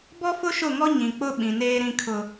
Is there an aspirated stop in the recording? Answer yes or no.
yes